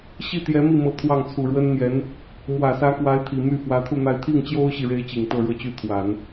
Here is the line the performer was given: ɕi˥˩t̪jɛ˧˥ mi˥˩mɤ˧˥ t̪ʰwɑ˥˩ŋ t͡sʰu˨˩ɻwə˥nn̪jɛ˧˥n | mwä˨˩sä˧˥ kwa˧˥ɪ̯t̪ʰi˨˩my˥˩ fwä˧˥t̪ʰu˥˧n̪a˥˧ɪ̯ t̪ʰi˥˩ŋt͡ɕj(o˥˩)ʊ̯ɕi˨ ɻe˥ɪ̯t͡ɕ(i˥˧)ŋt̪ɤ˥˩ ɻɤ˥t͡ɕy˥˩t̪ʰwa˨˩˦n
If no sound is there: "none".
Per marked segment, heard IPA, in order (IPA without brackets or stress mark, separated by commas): o˥, i˨˩